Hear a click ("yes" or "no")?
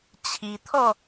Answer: no